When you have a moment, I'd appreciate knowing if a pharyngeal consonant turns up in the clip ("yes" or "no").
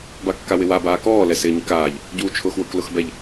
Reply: no